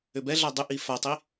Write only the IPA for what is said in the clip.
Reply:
ʏbɛɮa dˤʏʔi fatˤi

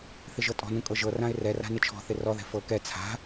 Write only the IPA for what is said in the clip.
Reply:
θɪʒɤtʼɔ̤nũ kʼɤʒɤrãɪ̯ rɛra̤ nɪt͡ʃʰɔ̤θɪ rɔðɛ̤ fɤ kɛ t͡sʰa̤

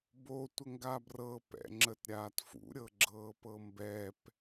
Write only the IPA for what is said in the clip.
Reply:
botʷəŋɡa brɤpɛ̰ŋ͡ǁətɾʲaːt fṵɾʲɤɡ͡ǁɤːpɤ mbɛp

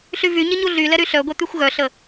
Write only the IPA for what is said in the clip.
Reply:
ɬyvyɲɪ ɲuɮylɛ ɾyɬœɡʷɛ t̪yxʷɣœɬə

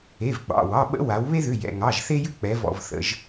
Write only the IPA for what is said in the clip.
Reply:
e˩˧˩vɡ͡bɑ̰˩˧˩wɑ˩˧˩ɓə̰˦ wa˩˧w βe˦ðʏ˩˧˩jɛ̰˩˧˩ ŋɑ˩˧˩ʒθe˦jʏ˦ k͡pɛ˩˧vɔ̰˩˧˩vθə̰˩˧˩ʒ

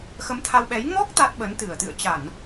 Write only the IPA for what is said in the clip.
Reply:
xə˨˦mt̪ʰa˧wɓɛ˨˦j ŋɔ˦˥k̚ t̪a˦˥t̚ɓə˨˦n t̪ɨ˧˩ə̯t̪ɨ̰˧˨ə̯ t͡ɕa˧˩˨n

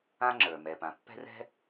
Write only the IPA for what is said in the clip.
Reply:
ã˥ŋ͡ǁə˞˩ mɛ˩pã˩pːɛ̤˥rɛ̤˥

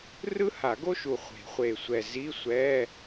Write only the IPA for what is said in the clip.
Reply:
rɯ˥ha˨˩˦ɡo˥ʃu˨˩ χʷe̤˨˩˦χʷe˨˩sʷɛ˨˩ zi˧˥˧sʷɛ˧˥˧

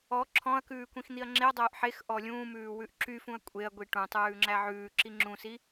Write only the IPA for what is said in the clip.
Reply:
ɔ ǁʰɔ̃ɐ̯kʉː kʷĩxn̪iɐ̯ŋ͡ǁeɐ̯dˤœːʔ ħex ʔɔlʲũːmʉː wʉʔǁyfũɐ̯ kʷʼeɐ̯ɡʷi ʈũtˤʉː ŋ͡ǁæʕʉːǁi ŋ͡ǁũsi

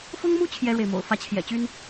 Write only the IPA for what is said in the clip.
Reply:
fʊ˥ŋmu˥ t͡ɕʰjɛ˥ɻwe˨ɪ̯mo̰˨˩ʊ̯fä˥ t͡ɕʰjɛ̰˨˩t͡ɕy˥n

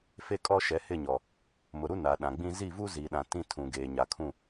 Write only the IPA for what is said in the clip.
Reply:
fe˦kʼɔ˦ʃɛ˨˦ hɪ˦˨ɲɔ˨ | mʊ˨ɾu˦ na˨ɗã˨ɡ͡bĩ˦ zi˦˨vu˦zi˨ɗã˨ tĩ˦ tʰũ˨ ɡeː˨ɲa˨kʰũ˦˨

